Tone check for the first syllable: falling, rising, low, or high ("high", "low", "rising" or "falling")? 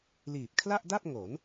low